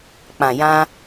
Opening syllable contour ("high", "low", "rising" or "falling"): low